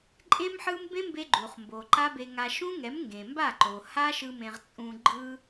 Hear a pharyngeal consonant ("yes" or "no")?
yes